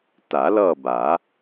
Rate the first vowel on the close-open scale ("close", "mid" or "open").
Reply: open